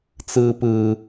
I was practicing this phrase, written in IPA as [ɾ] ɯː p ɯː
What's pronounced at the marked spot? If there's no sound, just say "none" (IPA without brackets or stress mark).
t͡s